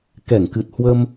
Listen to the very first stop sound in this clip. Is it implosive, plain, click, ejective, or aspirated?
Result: plain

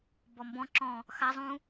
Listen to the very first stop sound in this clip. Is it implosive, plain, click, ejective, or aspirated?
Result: plain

